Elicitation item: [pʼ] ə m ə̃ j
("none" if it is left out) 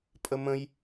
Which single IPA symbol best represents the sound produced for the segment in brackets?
pʼ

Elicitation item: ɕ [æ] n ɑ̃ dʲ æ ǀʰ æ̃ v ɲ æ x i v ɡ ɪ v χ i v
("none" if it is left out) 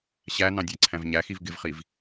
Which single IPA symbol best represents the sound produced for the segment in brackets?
æ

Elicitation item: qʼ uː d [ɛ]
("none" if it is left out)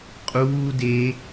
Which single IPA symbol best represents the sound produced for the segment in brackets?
e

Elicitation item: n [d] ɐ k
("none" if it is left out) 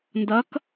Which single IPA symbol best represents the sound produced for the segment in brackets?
d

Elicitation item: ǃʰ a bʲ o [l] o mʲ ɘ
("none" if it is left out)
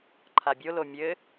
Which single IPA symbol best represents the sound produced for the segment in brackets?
l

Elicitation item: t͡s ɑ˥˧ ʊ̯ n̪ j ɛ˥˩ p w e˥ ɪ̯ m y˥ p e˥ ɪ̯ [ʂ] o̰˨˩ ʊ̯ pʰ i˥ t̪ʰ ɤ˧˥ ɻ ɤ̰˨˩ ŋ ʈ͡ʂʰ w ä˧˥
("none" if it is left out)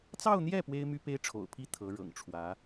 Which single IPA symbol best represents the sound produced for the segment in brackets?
ʈ͡ʂʰ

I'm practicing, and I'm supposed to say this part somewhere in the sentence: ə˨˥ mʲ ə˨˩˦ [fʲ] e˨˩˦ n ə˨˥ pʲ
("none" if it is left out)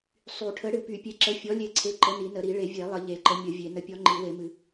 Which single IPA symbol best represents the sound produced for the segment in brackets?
vʲ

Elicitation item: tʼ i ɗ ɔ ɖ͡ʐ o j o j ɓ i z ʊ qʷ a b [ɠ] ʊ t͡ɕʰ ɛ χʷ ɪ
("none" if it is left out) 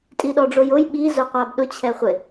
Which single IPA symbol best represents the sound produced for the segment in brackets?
ɗ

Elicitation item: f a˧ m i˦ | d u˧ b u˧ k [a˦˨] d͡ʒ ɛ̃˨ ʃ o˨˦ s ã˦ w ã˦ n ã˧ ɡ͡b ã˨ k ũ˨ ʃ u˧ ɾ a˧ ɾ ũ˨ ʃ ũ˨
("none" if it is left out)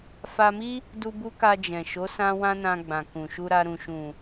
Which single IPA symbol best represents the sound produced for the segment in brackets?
a˧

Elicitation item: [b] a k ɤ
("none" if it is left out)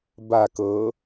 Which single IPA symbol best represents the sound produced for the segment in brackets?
b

